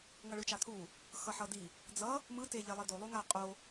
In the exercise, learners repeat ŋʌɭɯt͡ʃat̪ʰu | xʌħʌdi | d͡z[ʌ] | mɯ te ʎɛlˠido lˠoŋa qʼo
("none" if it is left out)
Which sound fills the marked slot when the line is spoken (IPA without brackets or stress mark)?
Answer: ʌ